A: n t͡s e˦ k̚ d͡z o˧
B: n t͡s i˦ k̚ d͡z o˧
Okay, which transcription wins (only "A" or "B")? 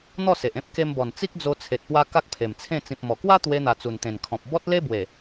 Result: B